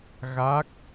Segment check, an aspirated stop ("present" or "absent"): absent